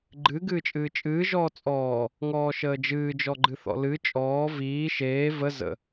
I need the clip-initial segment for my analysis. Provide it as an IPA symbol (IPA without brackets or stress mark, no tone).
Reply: ɡ͡ǃ